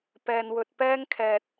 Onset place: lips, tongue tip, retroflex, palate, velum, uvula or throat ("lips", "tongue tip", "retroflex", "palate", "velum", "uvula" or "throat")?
lips